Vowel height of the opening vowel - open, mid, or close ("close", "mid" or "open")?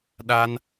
open